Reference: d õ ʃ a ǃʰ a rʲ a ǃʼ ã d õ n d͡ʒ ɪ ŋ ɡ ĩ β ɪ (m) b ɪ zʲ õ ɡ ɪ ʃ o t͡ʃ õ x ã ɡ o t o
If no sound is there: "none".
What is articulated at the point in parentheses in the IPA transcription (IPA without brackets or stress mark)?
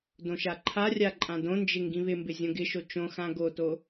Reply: m